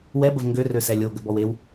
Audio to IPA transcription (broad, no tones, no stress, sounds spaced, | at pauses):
w ɛ b ə v ŋ ɡ ø r ø s ɛ lʲ o ɡ ə b ɔ w e w